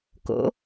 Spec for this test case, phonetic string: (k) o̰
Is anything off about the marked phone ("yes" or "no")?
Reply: no